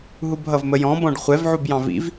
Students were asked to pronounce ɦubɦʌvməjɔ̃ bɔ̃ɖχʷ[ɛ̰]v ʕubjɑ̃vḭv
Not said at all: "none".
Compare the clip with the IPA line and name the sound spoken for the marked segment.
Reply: ɛ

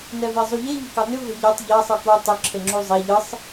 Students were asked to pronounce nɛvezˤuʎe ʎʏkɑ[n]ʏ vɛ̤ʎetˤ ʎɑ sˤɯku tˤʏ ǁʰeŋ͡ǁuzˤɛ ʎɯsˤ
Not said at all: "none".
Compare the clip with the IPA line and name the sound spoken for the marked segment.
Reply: n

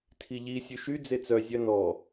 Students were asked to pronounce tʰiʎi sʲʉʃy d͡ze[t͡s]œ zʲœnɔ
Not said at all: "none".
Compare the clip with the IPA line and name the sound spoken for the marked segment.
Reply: t͡s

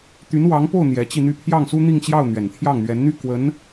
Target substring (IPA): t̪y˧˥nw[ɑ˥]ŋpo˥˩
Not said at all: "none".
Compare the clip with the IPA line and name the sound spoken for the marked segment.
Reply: ɑ˧˥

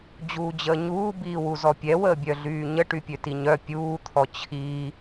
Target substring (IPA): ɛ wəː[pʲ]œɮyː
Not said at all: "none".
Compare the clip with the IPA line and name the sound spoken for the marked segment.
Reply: bʲ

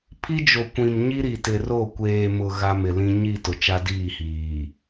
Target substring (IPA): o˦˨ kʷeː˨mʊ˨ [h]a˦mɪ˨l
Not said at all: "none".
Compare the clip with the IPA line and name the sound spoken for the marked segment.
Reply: ɣ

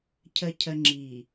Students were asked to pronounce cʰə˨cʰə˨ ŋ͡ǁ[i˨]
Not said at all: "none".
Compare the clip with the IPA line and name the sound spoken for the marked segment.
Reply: i˨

